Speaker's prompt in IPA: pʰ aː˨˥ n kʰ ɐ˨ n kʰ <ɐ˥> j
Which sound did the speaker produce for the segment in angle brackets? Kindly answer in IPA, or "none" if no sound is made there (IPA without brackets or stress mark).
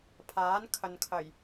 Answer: ɐ˨˩